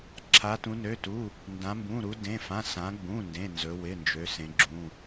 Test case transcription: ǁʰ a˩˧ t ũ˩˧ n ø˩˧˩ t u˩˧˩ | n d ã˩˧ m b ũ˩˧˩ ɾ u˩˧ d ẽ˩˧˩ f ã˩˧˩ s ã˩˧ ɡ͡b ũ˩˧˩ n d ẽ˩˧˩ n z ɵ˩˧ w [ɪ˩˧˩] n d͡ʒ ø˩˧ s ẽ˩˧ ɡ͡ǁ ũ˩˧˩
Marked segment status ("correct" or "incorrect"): correct